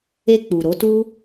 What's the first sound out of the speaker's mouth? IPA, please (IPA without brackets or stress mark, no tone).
e